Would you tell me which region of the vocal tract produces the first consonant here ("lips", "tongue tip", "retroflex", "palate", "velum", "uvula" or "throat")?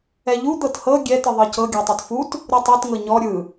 palate